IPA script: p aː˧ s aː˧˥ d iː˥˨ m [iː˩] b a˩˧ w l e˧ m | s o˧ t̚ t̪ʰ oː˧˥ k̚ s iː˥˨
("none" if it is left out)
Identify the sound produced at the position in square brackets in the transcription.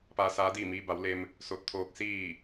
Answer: iː˧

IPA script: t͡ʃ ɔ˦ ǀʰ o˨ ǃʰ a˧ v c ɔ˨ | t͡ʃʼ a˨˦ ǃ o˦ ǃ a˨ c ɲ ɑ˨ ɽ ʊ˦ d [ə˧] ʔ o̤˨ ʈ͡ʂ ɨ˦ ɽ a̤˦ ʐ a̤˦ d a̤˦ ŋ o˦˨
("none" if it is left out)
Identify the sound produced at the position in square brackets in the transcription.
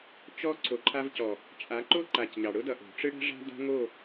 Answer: ʌ˧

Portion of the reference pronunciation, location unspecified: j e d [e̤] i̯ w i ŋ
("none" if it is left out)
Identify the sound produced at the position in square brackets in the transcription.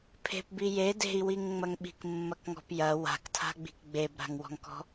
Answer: e̤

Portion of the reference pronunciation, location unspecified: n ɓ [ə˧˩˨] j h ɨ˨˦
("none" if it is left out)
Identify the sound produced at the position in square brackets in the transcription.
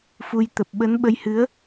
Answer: ə˧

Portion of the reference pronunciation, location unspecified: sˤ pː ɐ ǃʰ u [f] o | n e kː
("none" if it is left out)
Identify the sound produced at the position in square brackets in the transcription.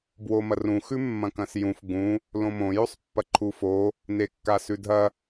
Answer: f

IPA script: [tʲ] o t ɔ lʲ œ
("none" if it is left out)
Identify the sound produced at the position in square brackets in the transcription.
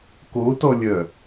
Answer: k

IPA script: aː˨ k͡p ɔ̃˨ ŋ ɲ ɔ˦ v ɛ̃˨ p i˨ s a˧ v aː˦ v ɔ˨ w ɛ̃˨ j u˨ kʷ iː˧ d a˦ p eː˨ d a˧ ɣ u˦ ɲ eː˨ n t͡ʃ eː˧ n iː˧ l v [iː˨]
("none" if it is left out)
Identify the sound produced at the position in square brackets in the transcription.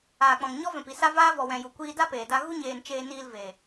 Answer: eː˨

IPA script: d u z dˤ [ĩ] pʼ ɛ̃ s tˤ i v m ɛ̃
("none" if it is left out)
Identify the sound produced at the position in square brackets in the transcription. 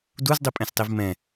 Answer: i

